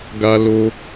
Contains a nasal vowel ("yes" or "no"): no